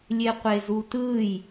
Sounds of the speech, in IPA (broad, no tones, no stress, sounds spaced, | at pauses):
lʲ e qʷ e z u t ɯ j